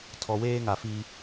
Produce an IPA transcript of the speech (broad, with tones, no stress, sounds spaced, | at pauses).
tʰ ɔ˨ w eː˦ ŋ a˨ f i˦